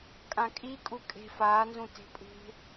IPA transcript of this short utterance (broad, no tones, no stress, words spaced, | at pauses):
kʼãkʼikʼu kʼe̤ faːnzũ te̤pʼṳ